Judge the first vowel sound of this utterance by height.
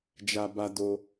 low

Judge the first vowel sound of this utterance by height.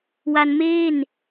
low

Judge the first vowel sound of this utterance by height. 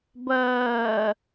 mid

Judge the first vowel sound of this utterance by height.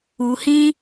high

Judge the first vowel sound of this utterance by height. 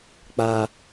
low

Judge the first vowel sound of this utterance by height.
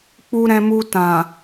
high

